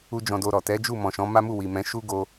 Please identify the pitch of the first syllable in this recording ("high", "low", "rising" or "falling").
high